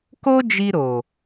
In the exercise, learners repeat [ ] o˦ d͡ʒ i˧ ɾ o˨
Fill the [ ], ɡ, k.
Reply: k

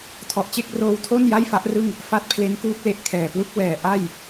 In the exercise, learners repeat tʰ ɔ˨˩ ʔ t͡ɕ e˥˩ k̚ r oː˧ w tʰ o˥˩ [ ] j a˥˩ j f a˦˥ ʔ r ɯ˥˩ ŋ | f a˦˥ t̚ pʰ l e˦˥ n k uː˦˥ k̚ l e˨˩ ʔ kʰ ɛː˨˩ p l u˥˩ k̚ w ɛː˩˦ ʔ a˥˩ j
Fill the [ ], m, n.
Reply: n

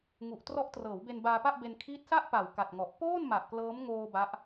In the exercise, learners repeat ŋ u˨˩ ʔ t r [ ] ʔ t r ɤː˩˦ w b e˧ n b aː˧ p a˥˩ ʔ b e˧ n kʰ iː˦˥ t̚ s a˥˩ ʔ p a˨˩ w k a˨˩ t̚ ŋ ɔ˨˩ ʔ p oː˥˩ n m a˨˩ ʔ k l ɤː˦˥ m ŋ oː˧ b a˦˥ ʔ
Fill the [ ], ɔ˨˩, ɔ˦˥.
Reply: ɔ˦˥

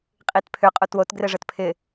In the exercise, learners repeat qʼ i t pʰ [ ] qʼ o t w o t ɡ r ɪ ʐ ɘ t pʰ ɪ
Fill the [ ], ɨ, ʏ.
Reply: ʏ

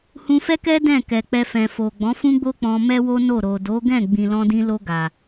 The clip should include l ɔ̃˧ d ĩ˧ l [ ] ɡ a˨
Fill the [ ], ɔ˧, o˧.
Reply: o˧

